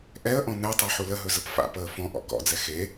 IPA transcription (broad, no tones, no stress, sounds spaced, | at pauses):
ʔ ɛ ə̯ ʔ ɔ̃ n ɛ tˤ ɛ ħ u l ə ɦ ɵ z ə p f a̰ p əː f ɔ̃ ʔ ɔ̰ k ɔ̰ d͡z ɛ x e